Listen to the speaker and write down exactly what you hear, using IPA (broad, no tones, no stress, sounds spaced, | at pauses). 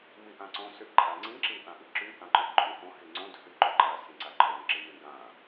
m i ʔ ã ǀ õ s y ʔ ǃʼ a ŋ͡ǀ ĩ ǁ i ʔ ã ʔ i ǁ y ʔ ã ǃ y d ǃʼ y ʔ õ h i ŋ͡ǀ õ d h y ǃ y ǃ a s ĩ ǀ a ǃʼ o n ǁ i n ĩ ɡ ã